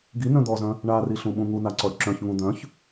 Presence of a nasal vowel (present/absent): present